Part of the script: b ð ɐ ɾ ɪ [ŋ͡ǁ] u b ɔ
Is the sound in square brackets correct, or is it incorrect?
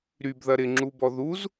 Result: correct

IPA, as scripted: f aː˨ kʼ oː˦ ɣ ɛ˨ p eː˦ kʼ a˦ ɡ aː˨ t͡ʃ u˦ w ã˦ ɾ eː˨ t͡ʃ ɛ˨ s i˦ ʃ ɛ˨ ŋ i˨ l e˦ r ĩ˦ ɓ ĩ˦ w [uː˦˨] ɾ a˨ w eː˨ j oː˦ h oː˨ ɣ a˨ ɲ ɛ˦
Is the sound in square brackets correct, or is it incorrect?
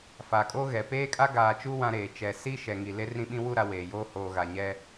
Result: incorrect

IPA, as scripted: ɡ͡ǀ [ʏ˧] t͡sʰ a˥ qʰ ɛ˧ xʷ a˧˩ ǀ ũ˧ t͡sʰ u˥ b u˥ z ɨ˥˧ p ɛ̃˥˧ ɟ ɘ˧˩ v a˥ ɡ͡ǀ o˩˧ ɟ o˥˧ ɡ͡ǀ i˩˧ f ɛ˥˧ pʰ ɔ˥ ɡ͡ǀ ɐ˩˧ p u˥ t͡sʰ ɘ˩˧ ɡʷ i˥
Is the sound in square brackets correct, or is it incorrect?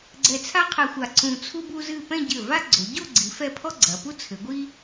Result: incorrect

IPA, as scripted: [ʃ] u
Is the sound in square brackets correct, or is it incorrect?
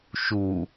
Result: correct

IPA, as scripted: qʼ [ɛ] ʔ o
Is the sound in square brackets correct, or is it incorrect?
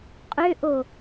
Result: incorrect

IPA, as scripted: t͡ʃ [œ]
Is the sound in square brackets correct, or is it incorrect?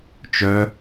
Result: correct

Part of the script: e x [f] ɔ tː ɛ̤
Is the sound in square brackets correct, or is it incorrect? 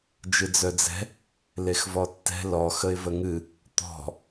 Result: incorrect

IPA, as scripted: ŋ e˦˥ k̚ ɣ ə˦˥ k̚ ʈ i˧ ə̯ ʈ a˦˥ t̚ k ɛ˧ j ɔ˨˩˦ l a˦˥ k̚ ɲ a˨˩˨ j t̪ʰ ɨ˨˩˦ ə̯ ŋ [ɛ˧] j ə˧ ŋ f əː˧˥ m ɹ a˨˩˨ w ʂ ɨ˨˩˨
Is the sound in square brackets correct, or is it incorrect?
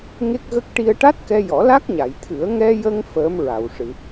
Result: correct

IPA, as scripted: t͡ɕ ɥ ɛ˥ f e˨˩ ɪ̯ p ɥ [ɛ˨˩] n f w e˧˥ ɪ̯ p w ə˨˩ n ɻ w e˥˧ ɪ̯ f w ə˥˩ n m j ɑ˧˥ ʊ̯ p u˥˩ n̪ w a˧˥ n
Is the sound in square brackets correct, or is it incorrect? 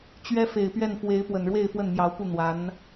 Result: incorrect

